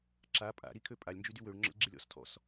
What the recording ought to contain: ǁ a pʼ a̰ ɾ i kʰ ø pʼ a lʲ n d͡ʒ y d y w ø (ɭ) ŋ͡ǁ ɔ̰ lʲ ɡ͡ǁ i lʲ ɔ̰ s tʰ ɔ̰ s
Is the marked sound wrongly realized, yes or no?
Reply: no